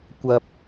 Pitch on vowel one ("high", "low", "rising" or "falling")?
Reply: low